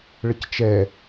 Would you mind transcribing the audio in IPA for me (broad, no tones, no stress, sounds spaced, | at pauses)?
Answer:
ɭ ə c t͡ʃ ɛ